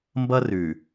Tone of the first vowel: high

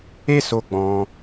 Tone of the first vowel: high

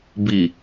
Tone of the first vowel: low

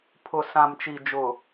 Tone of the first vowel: low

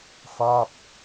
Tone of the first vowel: falling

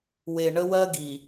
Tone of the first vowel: low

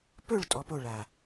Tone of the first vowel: falling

